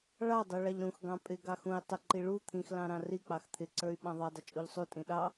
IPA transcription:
ɭ ɑ dˤ u ɭ ɑ ʎ ɾ ũ x ɡ ɑ̃ pʼ ɪ ɡ ɑ x ũ i̯ tˤ ɪ ǃ i ɭ u t̪ʰ ĩ x l ɑ̃ ɾ ɑ̃ r i k͡p ɑ x t̪ʰ ɪ ǀ ə˞ y̯ ɓ ɑ̃ ðˤ ɑ dˤ ɪ t͡ʃʼ u ʎ sˤ u tʼ ĩ ɗ ɑ

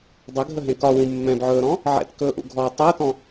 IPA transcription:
dˤ ə ɡʱ ə ɦ ẽ k ɒ w ũ mː ɛ̃ b ʕ ɵː ɾ ɔ̃ | ʕ ɛ̰ t k ɵː ʔ ṵ ɡʱ ɔː tˤ əː t ɔ̃

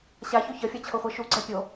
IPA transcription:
ɕ a ç o ç ʌ fʲ a t͡ɕʰ o χʷ e ʃ u ɡ͡ǀ ɛ pʲ o

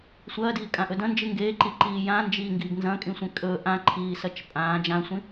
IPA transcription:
sʷ ɐː d iː kʼ ã ʔ ɵ d ɐ̃ n d͡ʒ ɨ ŋ ɡ eː ǃ i ǃ iː j ã n d͡ʒ iː ŋ ɡ iː ɡ n z ɐ̃ kʼ ĩ sʷ ẽ kʼ ɵ ʔ ã ǃʰ iː s ɐ t͡ʃ pʼ ãː d͡ʒ ã sʷ ĩ

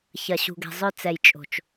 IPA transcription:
ç ɐ˨ ɕ ṳ˨ ɡ ɛ̤˨ zˤ œ˦ t͡s ɛ˨ j t͡ʃʼ o̤˨ t͡ʃ

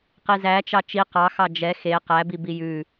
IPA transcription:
q i z æ t͡ʃ ɑ t͡ʃ i q ɑ x ɑ d͡ʒ ɛ x e q æ b i b i j ʉ

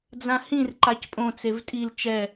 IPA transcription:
d͡z ã h ĩ r ǃ a c pʼ õ t͡s e v tʼ i l t͡ʃ ɛ

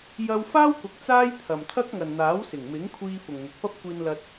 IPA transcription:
j ɐ˧ w f aː˥ w k ʊ˨ k̚ t͡s aː˥ j t̪ʰ ɐ˨ m t̪ʰ ɐ˥ k̚ ŋ ɐ˨ n n̪ aː˨˥ w s ɪ˨˩ ŋ m ɪ˨˥ ŋ kʷʰ iː˧ f ʊ˨ ŋ n̪ ʊ˨ k̚ p ɐ˥ p̚ kʷ iː˧ n l ɐ˧ t̚

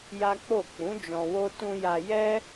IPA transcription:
j a˦ k͡p o˦˨ k͡p ũ˨˦ d͡ʒ ɔ̃˧ w o˦ t ũ˧ j a˧ j ɛ˦

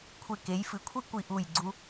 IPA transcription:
kʷʰ e˧˩ k e˩˧ j f ɨ˩˧ kʷʰ i˥ kʷ i˧˩ ʔ u˧˩ j ɡ͡ǀ u˧

